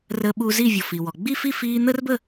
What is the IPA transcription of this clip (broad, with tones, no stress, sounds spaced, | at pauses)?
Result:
r əː˧ ɓ u˧ z i˥˨ vʲ ɔ˩ f i˩ w ɔ˩ ɡ͡b i˥˨ f i˥˨ f iː˧ n̪ əː˥ r b ə˥˨